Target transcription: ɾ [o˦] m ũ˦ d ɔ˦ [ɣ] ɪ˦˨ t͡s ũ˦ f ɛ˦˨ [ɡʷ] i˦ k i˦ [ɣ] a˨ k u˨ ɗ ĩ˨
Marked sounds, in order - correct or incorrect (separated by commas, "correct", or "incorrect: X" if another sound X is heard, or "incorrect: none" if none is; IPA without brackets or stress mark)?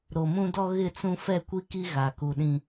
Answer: incorrect: o˨, correct, incorrect: kʷ, correct